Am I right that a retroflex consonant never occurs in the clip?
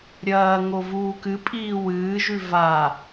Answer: yes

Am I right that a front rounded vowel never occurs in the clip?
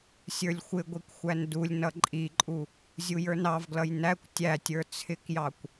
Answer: yes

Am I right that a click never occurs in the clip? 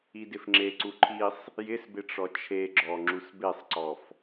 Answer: no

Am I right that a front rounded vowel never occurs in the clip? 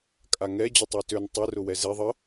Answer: no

